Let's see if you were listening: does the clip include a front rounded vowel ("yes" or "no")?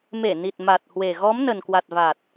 no